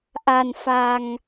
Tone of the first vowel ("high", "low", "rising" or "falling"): low